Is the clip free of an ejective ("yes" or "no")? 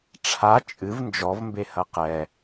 no